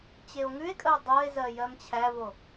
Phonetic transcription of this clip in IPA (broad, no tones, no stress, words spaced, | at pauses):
t͡ɕeo̯ŋʉe̯kʼəo̯ dˤoe̯ zɜjɜmt͡ɕʰævo